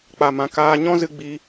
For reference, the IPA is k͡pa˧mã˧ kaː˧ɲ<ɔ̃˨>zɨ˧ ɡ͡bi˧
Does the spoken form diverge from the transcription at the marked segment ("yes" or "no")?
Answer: yes